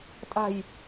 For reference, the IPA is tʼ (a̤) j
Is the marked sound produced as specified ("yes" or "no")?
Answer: yes